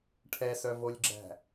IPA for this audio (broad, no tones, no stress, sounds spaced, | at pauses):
ʈʰ ɛ s œ v o lʲ ɡ͡ǁ æ̤